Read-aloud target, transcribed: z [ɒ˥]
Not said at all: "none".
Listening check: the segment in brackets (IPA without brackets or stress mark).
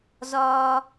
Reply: ɒ˥